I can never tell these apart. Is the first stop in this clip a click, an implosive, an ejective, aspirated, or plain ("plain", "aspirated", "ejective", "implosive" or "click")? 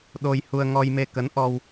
implosive